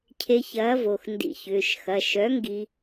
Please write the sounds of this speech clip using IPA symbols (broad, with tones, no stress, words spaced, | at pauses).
cʰe˧çɐː˨˥vo˩˧˩x ndḭ˧çʏː˩˧˩ʃ xɐ˩˧˩ ʃœ˨˥ŋɡi˧